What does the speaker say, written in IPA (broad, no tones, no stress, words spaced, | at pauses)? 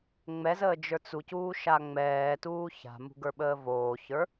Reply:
ŋ͡mɛzəː d͡ʒə˞t͡sucuː ʃaŋ͡mɛːtuː ça̤mṳ ɡə˞ɓəːvoːçə˞